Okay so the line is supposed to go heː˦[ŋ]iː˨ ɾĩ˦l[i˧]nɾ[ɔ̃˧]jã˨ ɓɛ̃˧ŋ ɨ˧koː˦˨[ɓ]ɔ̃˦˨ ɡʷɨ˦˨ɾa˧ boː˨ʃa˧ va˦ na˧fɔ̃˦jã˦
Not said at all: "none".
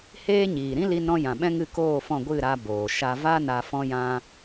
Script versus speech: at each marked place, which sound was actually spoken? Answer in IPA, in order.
ɲ, i˧, ɔ̃˧, f

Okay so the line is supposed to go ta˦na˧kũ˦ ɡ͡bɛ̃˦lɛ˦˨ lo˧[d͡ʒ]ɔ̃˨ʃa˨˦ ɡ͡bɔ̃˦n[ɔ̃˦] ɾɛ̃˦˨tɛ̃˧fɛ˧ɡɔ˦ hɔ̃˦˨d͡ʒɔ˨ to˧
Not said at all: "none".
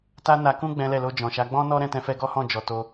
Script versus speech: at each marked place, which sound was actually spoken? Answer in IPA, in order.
d͡ʒ, ɔ˦

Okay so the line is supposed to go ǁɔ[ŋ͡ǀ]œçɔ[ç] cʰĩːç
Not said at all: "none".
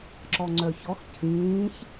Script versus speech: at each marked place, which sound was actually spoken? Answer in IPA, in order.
ŋ͡ǀ, x

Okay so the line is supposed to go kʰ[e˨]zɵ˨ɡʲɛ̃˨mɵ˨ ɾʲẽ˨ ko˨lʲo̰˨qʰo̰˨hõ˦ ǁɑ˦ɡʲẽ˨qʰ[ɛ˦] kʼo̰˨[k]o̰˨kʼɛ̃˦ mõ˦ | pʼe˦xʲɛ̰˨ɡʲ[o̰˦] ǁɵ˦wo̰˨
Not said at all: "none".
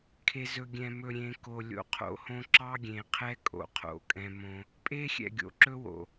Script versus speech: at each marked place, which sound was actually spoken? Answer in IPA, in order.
e˨, ɛ˦, qʰ, o̰˨

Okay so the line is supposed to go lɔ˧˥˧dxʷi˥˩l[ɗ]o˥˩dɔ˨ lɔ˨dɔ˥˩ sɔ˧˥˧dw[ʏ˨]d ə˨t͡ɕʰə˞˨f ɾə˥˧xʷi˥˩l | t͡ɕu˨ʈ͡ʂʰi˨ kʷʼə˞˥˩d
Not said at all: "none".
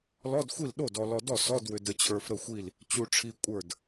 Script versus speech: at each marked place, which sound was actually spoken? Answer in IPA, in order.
ɗ, ʏ˨

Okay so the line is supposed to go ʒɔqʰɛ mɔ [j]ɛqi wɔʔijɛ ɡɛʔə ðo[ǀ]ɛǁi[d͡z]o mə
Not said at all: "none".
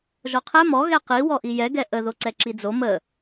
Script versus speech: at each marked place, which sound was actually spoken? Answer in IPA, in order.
ɣ, ǀ, d͡z

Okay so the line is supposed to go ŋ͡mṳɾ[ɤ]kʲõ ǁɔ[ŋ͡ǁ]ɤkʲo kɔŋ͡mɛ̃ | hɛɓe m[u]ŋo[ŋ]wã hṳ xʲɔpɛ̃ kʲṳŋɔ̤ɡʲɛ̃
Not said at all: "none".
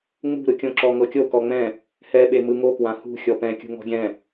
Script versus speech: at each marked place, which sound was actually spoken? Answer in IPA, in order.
ɯ, ŋ, ɯ, k

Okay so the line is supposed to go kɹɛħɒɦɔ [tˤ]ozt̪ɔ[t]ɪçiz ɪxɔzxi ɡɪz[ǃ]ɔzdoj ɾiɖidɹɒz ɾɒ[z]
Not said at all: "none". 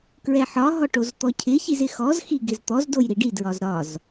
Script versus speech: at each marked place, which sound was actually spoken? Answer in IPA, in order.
ʈ, cʰ, t̪, z

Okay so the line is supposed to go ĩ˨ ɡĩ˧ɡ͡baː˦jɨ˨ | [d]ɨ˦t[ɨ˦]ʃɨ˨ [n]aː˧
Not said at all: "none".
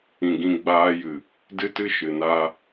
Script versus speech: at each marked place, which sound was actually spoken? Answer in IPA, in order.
d, ɨ˦, n

